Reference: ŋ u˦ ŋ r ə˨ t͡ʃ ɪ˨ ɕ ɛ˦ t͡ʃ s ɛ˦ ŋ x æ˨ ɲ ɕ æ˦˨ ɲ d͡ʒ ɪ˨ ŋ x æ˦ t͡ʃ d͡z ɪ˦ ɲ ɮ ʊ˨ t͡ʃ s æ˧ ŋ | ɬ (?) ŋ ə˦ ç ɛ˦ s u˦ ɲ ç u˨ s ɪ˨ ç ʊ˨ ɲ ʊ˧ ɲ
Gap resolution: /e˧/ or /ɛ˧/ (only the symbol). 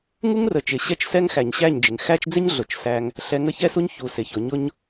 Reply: ɛ˧